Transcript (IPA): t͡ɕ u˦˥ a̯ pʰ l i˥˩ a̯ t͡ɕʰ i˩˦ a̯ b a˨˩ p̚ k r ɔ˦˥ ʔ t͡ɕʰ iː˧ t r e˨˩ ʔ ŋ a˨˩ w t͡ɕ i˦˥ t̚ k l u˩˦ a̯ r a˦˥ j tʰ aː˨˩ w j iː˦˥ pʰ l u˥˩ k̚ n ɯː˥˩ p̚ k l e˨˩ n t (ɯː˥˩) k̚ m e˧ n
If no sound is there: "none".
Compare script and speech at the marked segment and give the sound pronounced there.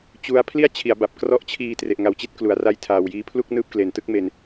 ɯ˥˩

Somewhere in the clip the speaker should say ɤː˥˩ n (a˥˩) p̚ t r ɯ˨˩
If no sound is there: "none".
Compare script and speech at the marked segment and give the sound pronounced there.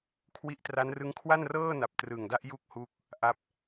a˨˩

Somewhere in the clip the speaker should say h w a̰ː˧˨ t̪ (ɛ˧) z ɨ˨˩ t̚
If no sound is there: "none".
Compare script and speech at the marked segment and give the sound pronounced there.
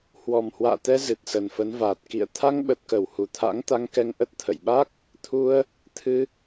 ɛ˧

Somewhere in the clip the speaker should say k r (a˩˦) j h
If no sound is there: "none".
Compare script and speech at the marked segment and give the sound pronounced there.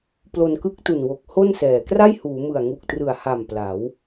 a˥˩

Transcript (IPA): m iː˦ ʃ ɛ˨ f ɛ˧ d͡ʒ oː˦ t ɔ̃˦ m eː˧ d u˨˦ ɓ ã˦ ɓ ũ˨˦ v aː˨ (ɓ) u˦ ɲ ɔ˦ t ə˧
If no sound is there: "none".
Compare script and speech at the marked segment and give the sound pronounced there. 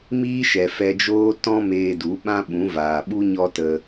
ɓ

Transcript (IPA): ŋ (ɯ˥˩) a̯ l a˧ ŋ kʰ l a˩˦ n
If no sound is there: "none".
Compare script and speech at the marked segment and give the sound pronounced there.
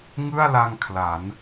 ɯ˥˩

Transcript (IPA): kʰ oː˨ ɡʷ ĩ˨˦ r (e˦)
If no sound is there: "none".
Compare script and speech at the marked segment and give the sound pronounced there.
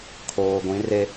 e˦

